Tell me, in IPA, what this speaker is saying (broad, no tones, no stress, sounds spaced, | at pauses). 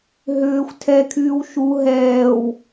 ɦ ʏː xʷ tʰ ɛ kʰ yː w ʃ u ɦ ɛː w